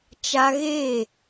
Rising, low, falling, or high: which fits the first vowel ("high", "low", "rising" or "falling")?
high